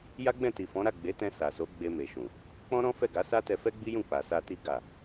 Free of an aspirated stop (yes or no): yes